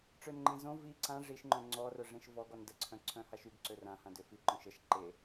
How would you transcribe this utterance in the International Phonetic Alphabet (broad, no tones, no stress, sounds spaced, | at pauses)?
ʈ͡ʂ ø n ŋ͡ǃ ẽ z õ v i ǀ ã ʐ i ʃ ŋ͡ǃ œ̃ ŋ͡ǀ ɔ r œ ʐ ẽ ʃ v ɔ ɡ ɔ n d ə ǀʰ œ̃ ǀʰ œ̃ h a ʃ y ɡ ǀ ø r ã h ã d ø f i ǃ œ̃ ʃ ə ʃ ǃ e